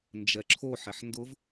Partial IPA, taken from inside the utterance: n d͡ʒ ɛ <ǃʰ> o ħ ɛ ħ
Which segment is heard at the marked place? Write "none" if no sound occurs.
ǁʰ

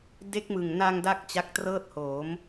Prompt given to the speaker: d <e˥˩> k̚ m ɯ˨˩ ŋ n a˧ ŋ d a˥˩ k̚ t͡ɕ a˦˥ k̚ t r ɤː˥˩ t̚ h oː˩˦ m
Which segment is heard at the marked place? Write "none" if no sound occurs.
e˦˥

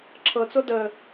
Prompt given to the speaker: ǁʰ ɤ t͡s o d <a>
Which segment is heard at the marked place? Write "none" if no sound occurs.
ə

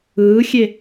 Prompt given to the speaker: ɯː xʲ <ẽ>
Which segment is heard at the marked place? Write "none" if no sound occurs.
e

